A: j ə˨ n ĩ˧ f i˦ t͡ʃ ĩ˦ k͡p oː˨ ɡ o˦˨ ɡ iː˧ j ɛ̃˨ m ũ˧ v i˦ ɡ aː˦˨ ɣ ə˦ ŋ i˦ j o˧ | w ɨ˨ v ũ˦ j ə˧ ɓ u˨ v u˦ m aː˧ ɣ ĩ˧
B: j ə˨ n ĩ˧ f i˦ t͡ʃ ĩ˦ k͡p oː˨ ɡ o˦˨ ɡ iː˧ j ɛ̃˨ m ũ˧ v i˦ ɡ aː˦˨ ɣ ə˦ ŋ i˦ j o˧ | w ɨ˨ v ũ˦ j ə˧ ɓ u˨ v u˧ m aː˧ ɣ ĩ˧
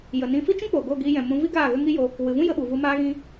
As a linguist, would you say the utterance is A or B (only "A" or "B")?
B